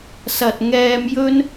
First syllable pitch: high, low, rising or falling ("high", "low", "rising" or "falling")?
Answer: low